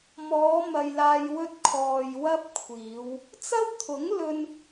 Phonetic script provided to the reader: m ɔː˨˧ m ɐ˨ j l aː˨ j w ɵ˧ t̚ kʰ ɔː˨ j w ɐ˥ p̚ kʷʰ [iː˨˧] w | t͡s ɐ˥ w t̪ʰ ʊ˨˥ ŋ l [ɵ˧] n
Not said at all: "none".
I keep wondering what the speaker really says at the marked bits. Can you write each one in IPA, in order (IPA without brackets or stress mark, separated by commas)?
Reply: iː˨˧, ɵ˧